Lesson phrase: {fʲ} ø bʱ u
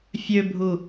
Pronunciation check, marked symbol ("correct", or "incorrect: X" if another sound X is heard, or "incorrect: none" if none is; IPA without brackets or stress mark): correct